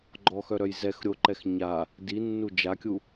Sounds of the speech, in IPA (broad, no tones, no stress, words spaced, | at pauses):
ɡ͡ǃɔxœɾœj zɛx ɾʲoǃɛx ɲa | dinːu d͡ʒakʲu